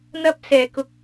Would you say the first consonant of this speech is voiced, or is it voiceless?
voiced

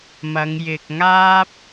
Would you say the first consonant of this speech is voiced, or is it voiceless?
voiced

